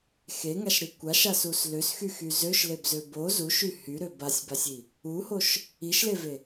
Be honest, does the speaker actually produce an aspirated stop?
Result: no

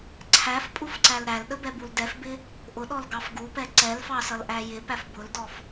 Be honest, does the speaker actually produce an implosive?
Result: yes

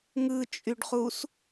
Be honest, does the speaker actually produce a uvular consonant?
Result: yes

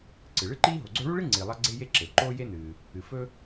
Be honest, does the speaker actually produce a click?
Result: yes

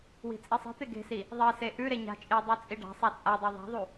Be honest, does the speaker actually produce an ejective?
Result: yes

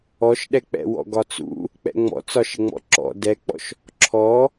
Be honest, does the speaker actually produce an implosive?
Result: yes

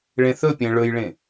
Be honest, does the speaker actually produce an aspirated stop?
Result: no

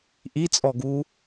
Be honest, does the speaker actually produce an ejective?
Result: yes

